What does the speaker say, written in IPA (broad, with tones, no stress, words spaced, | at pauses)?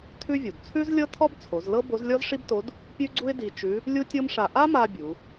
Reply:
tʰʉ˥vʲu˩d t͡sʰʉ˥zlʲɤ˥ tʰɔ˥bt͡sʰo˩˧zlɤ˥ bo˧˥zlʲɔ˥zʂi˥bto˧˥d | pʲʉ˥ɡ͡ǀu˥ɪ̯ di˧t͡ʃʉ˧˥ | lʲu˥tʲɤ˥mʂa˧ ʔa˥ma˧ bʲu˩˧